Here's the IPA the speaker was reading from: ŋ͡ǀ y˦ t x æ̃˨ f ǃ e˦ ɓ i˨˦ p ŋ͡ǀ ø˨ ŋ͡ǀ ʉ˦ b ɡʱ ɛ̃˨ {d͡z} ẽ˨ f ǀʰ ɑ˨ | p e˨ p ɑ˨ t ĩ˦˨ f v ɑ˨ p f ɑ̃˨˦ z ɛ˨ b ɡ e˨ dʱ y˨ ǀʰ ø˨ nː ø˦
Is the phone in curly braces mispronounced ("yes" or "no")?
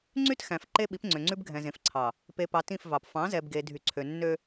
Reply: yes